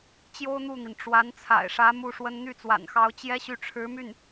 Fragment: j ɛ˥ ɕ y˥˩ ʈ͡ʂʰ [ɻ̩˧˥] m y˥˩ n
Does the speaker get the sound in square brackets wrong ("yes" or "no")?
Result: no